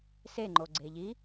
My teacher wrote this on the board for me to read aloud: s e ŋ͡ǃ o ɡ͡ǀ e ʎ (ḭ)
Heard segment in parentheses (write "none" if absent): i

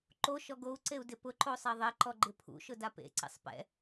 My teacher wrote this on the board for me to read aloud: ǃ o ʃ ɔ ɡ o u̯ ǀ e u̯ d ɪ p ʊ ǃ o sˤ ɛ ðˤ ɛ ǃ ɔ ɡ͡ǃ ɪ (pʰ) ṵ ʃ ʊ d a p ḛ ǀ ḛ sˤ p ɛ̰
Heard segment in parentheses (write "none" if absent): pʰ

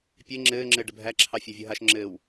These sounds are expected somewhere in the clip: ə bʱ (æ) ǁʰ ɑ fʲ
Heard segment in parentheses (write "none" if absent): æ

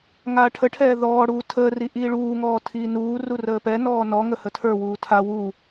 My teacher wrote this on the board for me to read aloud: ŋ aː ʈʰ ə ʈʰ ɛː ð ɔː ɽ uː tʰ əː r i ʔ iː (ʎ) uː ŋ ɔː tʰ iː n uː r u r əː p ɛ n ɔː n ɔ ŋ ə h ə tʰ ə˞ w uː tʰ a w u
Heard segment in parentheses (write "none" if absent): ɭ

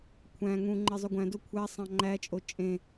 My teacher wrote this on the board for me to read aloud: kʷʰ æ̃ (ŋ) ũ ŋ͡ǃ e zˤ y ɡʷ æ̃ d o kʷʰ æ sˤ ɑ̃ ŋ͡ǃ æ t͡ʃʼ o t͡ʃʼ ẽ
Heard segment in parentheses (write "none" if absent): ŋ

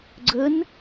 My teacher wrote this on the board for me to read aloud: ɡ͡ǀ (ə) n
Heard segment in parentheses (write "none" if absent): ə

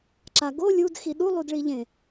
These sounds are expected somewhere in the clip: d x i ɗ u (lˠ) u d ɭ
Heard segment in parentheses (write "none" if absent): lˠ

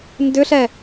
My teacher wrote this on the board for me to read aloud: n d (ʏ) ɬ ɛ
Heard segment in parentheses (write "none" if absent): ʏ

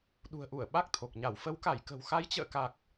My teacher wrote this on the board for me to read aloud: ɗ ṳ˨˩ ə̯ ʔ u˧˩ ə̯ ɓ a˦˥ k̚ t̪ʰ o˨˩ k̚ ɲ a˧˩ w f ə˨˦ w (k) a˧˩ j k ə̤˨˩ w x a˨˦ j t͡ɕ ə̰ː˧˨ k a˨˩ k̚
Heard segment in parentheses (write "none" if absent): k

